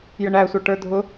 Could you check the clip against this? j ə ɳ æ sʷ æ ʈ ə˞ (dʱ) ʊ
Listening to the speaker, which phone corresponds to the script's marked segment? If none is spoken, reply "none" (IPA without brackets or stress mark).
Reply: dʱ